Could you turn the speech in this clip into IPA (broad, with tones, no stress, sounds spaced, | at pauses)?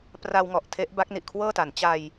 p r a˧ w ŋ ɔ˨˩ ʔ tʰ e˦˥ ʔ b a˦˥ k̚ n i˨˩ ʔ kʰ w ɤː˥˩ t a˩˦ n t͡ɕ a˧ j